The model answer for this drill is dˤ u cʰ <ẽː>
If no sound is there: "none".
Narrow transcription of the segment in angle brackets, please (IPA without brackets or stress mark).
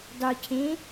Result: ẽː